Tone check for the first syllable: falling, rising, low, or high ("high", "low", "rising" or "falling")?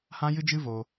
high